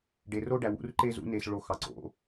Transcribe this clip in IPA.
ɖ e˨ r o˦ ɖ æ˨ w ṵ˨˦ r ǃ e˦ z ṵ˨˦ n e˦ s ɭ o˦ x ɑ˨ ǀ o̰˨˦

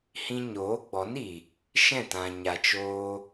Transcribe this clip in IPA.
h ĩ˧ ɲ oː˨˦ ɡ͡b ɔ˨˦ n i˨ | ʃ ɛ̃˦˨ t ã˨ ɲ a˨ t͡ʃ oː˧

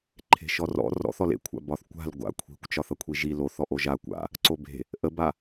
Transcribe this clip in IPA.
ǃʰ e̤ ʃ ɔ r ɔ̰ r ɔ̰ θ ɔ l ḛ kʷʰ a̰ b ɒ θ kʷ a̤ l ɡʷ a̰ kʷʰ i̤ kʷ t͡ʃ ɒ θ ʌ kʷʰ i ʒ i l o θ ɔ ʔ o ʒ a kʷ a̰ | ǀ o b e̤ | ʔ ə b a

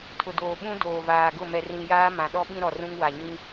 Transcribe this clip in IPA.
tʰ ʊ˨ d oː˨ ɓ ũ˦ d oː˨ v aː˨ ɡ ʊ˦˨ m ɛ˨ r ĩ˨ j aː˦ m ã˨ ɗ ɔ˦ ɓ ĩ˦ ɾ ɔ˨ r ũ˦ ŋ w a˨ ɲ ĩ˦

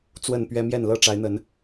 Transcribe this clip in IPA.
t͡s w ə˥˨ n p ɥ ɛ˦ m j ɛ˥˨ n l ɤ˥˨ ʈ͡ʂ a˨˦ ɪ̯ n̪ ə˨˦ n

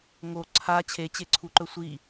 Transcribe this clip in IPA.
ŋ o ǀʰ a t͡ɕʰ e t͡ɕ e ǀʰ u ǃ ɵ sʷ i

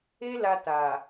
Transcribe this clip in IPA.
e˦ l a˧ t a˨

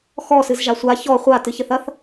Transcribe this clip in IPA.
x ɔ s ɨ z ʒ a sʷ a ç ɔ χʷ a t ɨ ç ɘ θ ɐ θ

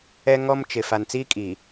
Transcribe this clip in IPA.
ɛ˦ ŋ ɔ˦ m t͡ʃ ɪ˨ f a˨ n t͡s iː˦ kʼ i˨

